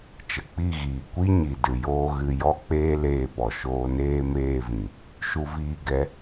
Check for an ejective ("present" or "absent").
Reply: absent